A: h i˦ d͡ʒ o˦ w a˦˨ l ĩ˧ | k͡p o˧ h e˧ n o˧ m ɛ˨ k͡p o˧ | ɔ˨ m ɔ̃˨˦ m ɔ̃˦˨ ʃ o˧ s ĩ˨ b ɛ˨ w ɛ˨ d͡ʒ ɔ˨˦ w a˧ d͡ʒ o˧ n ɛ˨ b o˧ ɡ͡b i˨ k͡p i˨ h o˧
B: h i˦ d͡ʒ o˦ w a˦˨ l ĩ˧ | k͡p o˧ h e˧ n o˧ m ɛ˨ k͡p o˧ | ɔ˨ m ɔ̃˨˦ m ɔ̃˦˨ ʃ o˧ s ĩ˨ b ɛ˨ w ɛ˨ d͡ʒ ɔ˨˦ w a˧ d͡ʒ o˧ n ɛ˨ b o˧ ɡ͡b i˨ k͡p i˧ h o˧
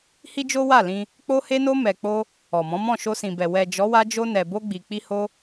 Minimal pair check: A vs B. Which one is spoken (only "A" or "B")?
B